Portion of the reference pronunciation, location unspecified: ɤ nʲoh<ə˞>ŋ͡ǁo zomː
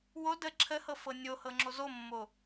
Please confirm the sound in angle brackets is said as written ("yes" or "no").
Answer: no